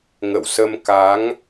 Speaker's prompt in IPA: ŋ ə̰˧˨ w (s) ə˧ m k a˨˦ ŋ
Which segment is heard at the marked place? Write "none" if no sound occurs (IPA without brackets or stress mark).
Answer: s